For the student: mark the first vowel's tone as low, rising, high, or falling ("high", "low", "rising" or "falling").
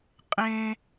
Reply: high